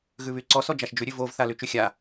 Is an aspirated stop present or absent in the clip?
absent